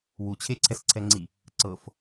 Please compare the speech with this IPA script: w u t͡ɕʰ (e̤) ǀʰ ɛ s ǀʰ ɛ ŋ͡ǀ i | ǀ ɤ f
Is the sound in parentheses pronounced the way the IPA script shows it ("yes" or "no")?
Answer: no